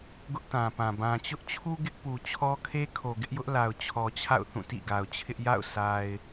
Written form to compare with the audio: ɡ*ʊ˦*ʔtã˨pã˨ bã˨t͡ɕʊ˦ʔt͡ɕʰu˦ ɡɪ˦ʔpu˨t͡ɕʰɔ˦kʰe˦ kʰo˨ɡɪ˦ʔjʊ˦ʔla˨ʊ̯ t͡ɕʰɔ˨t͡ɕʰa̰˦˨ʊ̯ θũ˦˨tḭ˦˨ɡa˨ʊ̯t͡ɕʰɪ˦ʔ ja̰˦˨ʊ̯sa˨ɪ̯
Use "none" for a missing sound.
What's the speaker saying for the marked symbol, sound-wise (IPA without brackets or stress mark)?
ʊ˦